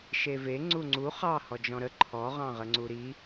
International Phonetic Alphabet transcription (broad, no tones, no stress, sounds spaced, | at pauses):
ʃ e v e ŋ͡ǀ u ŋ͡ǀ u χ ɑ h ɔ d͡ʒ ɔ̃ ɾ ə ǃʰ ɔ ʁ ɑ̃ ʁ ə ŋ͡ǀ u ɾ i